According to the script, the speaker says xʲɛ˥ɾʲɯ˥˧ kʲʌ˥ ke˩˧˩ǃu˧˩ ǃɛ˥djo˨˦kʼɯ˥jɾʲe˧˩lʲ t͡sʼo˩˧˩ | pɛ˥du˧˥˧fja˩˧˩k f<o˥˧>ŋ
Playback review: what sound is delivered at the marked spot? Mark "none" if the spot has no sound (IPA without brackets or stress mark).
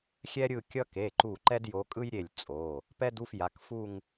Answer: u˥˧